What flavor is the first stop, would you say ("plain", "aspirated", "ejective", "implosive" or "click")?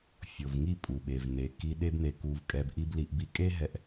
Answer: ejective